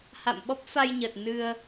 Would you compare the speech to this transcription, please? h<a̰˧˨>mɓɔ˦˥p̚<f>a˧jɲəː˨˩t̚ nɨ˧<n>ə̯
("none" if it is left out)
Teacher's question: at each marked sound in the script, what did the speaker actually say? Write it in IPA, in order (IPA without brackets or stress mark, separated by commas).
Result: a̰˧˨, f, none